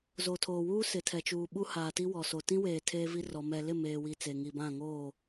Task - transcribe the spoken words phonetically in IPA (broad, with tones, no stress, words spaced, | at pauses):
zo˨tʰoː˨wuː˦ sɪ˨tʰɛ˨t͡ʃuː˨ ɓu˦haː˨ ti˦wɔ˨so˨ tĩ˦weː˨ tʰeː˦vi˦rɔ˨ mɛ˨lɪ˦˨ meː˨wi˨ t͡se˨ŋi˨bã˦˨ ŋoː˦˨